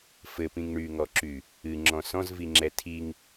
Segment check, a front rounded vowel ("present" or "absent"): present